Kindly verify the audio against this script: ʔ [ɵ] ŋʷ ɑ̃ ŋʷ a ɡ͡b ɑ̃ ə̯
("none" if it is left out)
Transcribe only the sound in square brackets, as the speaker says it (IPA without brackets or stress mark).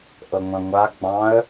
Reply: ɤ